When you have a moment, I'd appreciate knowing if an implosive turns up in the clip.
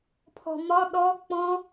yes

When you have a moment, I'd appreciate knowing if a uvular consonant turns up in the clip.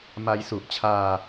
no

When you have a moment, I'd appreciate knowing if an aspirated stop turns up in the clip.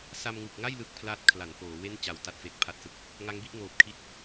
yes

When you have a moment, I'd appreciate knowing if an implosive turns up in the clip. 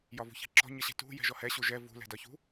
no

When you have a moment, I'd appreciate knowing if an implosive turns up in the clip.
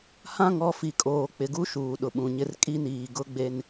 yes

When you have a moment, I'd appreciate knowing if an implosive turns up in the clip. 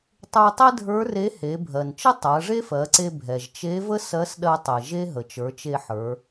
yes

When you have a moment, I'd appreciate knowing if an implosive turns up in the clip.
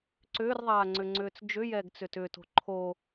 no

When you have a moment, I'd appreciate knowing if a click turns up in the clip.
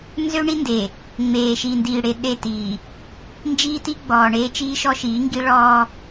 no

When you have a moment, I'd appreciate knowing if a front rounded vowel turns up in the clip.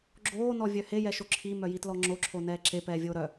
yes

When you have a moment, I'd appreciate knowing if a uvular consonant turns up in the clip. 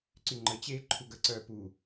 no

